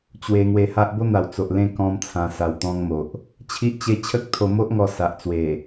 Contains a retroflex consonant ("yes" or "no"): no